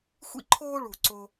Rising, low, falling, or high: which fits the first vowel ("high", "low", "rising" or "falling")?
high